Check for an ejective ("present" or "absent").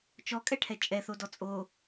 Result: present